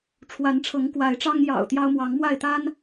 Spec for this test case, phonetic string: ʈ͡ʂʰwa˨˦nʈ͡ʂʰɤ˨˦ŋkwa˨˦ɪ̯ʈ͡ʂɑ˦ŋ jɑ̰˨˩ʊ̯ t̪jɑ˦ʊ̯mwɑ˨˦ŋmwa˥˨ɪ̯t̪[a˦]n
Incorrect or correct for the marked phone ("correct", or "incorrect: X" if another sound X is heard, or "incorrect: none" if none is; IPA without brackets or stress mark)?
correct